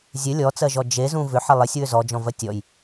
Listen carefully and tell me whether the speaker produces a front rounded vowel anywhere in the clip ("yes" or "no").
yes